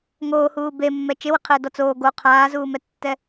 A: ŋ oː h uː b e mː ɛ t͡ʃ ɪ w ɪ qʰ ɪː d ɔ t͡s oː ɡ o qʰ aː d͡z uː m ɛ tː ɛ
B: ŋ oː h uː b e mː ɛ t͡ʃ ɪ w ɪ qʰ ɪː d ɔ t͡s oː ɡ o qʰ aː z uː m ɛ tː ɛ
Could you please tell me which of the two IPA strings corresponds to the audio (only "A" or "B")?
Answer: B